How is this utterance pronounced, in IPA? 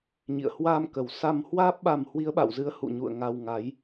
ɲ ḭ˧˨ ə̯ h w a˧ m k ə˨˩ w s a˧ m h w aː˦˥ p̚ ɓ a˧ m h w i˨˦ ə̯ ɓ a̰˧˨ w z ɨ˨˦ ə̯ h ṵ˧˨ ɲ ṵ˧˨ ə̯ ŋ a˧ w ŋ a˨˦ j

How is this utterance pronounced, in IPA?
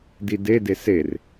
d i d e d e s e r

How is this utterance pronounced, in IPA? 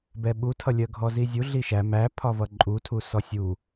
b ɛ ɓ u tʰ ʌ lʲ ɜ ɡʱ ɔ z i zʲ u ɮ i ʃ æ m æ pʰ ɒ v ʌ ǃʼ u tʰ u s ɔ sʲ u

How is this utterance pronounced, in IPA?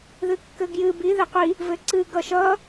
ð ɨ kː ɘ ɡ j ɨ b i ð ɘ qʷ i | v ɘ ǀ ɨ ɡ ʌ ʃ ʌ

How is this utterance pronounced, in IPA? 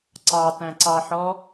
ǀ ɑ t æ̃ ǀ ɑ ħ ɔ

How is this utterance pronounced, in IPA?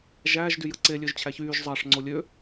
ʒ æ ʒ d y j ɯ ǀ e lʲ ø ʒ t͡ɕʰ æ ç yː ʒ zˤ ɑ ʂ ŋ͡ǀ o lʲ ø

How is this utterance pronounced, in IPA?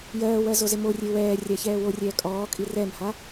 j ɜː w ɜ z o z ɪ m o rʲ e w ɛː rʲ a ç ɛː w o rʲ ɛː kʼ ɔː kʼ i r ɛ m h a

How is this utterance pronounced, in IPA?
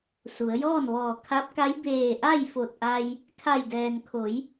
s u˩˧ ə̯ j ɔː˥˨ n ʋ ɔː˧˩ kʰ a˧˥ p̚ k a˧˥ j b eː˧˩ ʔ a˥˨ j f o˧˩ t̚ ʔ a˧ j | kʰ a˧˩ j d ɛː˩ n kʰ o˩˧ j

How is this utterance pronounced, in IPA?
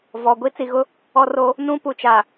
v ɔ˨ ɡʷ i˦ t͡s i˨ ɣ ʊ˦ | ɔ˦ r o˦ | n ũ˦ p u˨ t͡ʃ a˨

